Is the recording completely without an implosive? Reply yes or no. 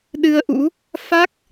no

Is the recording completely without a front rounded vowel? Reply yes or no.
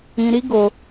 yes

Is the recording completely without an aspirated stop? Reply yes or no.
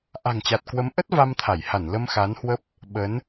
no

